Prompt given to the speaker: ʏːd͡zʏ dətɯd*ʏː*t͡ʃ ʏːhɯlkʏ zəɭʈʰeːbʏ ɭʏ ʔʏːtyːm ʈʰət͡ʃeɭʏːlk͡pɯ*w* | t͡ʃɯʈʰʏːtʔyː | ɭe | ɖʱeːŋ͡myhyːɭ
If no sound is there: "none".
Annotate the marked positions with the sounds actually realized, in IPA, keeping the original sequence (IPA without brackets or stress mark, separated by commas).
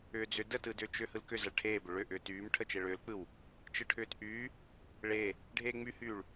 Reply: ʏː, w